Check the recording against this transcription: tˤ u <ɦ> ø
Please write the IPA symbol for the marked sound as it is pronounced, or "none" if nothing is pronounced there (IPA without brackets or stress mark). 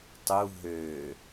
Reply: ɦ